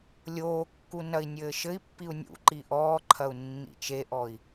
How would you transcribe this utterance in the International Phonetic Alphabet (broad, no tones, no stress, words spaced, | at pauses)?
lʲoːkːu nɐi̯nʲɘːʃɘi̯pːiu̯ nʲṵ ǃiʔɔːǃʰɐu̯ nːḭt͡ʃeʔɔi̯